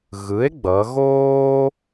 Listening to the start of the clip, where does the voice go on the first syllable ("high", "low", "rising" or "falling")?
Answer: rising